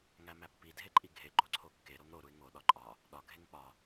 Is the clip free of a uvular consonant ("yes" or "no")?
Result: yes